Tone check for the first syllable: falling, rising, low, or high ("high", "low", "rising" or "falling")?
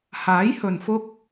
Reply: rising